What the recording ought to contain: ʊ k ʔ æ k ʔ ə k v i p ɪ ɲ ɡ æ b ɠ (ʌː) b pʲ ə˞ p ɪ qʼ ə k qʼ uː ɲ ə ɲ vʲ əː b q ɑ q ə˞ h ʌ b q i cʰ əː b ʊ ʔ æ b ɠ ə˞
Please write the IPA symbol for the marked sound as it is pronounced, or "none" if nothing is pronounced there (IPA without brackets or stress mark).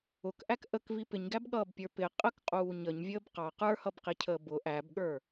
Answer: ʌː